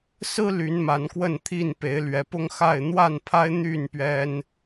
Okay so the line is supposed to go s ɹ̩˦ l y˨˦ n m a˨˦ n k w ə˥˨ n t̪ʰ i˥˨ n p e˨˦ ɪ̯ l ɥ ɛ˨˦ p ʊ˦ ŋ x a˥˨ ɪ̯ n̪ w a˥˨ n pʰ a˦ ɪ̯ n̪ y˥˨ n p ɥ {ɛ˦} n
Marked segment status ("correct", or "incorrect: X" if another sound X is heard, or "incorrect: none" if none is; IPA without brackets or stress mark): correct